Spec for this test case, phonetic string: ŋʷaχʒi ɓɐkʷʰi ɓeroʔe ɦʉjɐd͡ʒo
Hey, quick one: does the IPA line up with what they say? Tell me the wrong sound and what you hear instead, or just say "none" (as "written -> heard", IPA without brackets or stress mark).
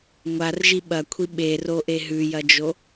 χ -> r